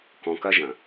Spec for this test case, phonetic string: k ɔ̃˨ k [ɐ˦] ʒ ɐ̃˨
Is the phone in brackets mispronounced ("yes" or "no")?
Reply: no